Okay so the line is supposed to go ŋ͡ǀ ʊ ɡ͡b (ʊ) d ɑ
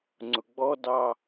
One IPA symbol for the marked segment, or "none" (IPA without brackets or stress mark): ɔ